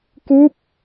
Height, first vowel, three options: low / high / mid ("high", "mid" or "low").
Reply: high